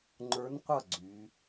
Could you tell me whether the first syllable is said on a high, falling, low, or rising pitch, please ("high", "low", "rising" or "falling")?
rising